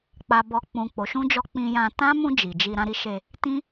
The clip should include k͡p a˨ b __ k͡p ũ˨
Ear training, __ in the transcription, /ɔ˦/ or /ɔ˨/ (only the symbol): ɔ˨